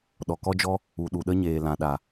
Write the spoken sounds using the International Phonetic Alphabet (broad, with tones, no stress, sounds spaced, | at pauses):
ɗ ɔ˨ k ɔ˦ d͡ʒ ɔ˦ | u˨ ɗ u˨ ɗ ə˦ ɲ eː˨ l ã˨ ɗ a˨